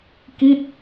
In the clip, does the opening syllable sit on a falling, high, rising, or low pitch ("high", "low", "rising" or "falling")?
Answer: falling